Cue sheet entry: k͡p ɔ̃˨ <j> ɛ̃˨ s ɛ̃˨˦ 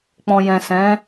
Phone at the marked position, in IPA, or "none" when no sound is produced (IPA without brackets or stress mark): j